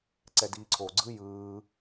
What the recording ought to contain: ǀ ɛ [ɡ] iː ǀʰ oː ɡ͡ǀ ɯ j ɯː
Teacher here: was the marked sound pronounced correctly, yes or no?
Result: no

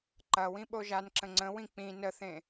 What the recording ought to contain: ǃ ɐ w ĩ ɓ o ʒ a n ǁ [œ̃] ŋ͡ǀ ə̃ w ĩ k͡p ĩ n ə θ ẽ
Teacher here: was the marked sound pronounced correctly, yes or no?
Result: no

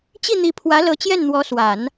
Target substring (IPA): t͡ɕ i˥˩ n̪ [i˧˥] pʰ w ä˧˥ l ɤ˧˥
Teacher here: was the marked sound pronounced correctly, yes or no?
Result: yes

